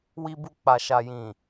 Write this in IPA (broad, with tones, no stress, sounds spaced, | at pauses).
w i˧ b u˧ k͡p a˨ ʃ a˨ j ĩ˨